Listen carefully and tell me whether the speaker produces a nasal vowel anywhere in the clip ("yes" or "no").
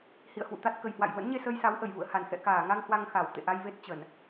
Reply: no